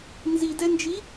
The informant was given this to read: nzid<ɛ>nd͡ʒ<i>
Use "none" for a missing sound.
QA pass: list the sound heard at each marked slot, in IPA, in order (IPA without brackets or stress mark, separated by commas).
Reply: ɛ, i